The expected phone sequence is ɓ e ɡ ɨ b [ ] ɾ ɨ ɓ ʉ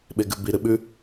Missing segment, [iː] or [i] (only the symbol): i